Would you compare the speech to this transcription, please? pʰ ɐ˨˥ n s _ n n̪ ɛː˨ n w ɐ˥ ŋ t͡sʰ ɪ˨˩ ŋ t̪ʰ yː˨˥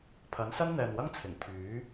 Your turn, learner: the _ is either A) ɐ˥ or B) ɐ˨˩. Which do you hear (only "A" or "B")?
A